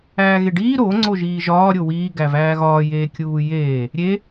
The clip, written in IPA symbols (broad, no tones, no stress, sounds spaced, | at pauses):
æː ɣ e ɖ iː ɾ o ŋ͡ǀ o ʒ iː ʒ ɒː ɾʲ o w iː ɡ æ v æː ɣ ɒː j eː kʲ uː j eː | ɾʲ e